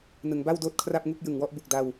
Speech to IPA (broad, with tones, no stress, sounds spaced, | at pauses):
n ɯ˩˦ ŋ b a˥˩ w d oː˥˩ t̚ kʰ r a˥˩ p̚ ŋ u˥˩ k̚ j ɯ˨˩ ŋ w ɔ˥˩ ʔ b u˨˩ k̚ d a˧ w